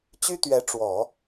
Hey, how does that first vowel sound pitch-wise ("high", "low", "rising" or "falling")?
high